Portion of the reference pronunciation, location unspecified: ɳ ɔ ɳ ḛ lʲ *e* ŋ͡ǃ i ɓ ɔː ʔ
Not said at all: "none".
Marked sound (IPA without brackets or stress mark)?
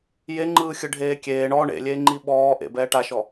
eː